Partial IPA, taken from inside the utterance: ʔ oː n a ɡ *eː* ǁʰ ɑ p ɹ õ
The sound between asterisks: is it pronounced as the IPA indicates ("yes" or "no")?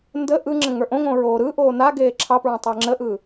yes